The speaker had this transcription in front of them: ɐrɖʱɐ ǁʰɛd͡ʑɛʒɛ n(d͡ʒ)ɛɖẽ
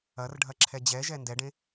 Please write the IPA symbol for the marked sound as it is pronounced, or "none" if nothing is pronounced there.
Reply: d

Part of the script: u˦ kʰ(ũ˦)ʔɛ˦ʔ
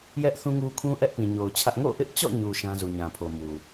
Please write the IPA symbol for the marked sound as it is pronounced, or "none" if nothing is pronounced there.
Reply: ũ˦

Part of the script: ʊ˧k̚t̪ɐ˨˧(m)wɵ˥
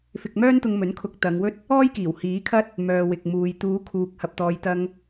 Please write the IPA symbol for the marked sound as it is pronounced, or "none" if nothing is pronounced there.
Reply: ŋ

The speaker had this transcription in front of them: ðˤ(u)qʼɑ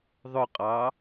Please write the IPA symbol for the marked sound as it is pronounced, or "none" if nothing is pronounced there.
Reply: ʊ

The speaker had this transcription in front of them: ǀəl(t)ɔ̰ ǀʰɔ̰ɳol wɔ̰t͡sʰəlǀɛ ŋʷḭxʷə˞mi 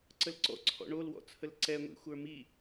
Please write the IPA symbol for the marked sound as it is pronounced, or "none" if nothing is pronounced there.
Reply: ǀ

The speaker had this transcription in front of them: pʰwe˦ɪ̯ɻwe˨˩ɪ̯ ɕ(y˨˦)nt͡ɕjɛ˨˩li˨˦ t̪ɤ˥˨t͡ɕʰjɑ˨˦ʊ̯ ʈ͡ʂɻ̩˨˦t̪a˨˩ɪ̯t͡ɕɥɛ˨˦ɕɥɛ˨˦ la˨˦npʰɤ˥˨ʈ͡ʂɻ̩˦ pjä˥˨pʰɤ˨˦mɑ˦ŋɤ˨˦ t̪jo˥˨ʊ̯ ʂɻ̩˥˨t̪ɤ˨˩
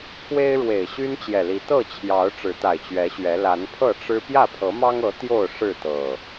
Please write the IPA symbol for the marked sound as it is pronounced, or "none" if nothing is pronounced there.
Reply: y˦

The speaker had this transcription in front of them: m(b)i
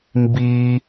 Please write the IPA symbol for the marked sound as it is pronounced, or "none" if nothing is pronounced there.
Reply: b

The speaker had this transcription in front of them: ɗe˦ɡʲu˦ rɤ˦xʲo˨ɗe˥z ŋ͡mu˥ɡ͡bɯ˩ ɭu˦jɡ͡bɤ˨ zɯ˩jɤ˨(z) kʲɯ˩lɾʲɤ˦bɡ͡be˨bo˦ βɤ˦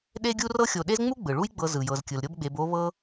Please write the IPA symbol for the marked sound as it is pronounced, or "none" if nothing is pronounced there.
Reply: z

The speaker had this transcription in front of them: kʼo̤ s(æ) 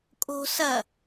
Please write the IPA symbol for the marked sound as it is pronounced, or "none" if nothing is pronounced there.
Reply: ɐ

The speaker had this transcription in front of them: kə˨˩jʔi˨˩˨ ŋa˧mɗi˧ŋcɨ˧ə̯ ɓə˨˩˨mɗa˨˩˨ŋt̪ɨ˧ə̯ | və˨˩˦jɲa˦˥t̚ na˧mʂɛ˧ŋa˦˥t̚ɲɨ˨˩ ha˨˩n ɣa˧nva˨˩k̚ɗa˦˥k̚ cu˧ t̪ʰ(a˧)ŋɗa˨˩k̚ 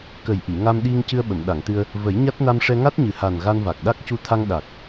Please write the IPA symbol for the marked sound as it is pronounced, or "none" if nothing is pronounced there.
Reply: a˧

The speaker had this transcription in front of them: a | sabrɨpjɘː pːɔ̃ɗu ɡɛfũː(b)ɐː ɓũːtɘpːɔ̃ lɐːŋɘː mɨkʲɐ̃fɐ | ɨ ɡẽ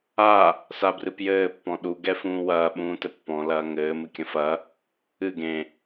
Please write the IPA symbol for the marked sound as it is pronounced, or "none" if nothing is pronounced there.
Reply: w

